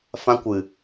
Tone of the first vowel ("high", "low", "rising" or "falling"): high